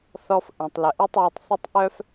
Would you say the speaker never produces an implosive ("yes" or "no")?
yes